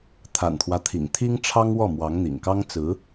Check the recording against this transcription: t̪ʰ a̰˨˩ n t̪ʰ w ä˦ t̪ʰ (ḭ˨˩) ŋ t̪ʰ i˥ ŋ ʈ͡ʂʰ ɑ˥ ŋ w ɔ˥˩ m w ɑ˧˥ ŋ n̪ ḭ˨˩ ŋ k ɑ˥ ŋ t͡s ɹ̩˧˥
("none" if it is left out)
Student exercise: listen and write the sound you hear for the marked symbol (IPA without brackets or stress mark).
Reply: ḭ˨˩